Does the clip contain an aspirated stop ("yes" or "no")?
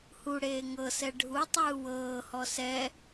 no